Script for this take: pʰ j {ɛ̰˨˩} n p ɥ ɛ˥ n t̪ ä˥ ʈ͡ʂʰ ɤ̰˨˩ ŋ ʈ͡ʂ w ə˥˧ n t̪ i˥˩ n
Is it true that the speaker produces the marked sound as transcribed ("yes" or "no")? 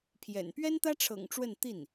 yes